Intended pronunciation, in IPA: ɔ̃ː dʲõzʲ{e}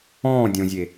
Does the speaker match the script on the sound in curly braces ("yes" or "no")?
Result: yes